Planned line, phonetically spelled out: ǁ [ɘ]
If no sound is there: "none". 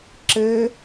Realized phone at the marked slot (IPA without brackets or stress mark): ɘ